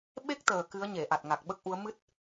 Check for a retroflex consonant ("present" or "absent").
absent